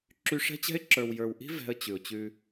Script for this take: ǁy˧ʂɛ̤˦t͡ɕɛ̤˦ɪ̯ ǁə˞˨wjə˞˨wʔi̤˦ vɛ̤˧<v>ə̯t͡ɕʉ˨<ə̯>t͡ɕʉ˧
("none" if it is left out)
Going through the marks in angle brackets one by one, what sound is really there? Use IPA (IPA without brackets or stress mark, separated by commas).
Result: none, ʊ̯